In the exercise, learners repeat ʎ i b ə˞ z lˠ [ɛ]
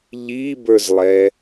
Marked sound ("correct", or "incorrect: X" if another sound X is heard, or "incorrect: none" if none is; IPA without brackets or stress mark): correct